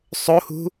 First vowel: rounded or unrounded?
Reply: rounded